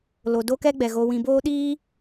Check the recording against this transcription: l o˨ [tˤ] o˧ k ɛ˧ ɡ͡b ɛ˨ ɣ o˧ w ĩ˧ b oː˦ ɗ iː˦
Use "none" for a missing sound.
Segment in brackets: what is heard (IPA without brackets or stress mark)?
d